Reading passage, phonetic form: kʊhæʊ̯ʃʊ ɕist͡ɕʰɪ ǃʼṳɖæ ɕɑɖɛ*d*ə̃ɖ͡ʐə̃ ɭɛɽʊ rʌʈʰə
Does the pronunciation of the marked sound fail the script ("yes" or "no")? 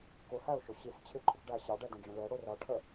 no